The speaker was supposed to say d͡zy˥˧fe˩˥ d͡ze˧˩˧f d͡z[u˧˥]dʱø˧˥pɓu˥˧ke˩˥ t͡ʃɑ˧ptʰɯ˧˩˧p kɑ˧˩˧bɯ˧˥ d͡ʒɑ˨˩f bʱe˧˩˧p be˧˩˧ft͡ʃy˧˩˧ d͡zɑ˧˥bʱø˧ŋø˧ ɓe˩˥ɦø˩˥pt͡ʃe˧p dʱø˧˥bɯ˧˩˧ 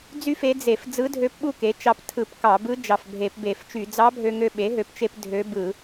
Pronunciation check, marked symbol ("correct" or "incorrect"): incorrect